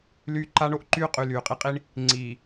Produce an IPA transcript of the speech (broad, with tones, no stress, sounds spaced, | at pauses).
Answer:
l yː˦ ǃ a˦ ɳ o˦ ʔ ǃ yː˦ qʼ y˨ l yː˨ qʼ i˦ qʼ i˦ ɳ | ŋ͡ǀ iː˨